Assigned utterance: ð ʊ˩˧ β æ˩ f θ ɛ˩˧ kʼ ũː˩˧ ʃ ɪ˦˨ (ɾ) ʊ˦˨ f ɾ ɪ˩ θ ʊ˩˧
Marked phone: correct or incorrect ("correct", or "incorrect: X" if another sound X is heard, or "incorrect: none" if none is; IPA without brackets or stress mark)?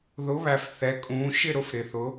correct